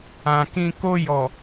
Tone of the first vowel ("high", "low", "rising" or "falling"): low